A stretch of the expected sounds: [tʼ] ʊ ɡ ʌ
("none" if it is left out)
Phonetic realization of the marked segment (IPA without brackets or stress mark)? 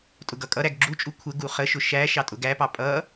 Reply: tʼ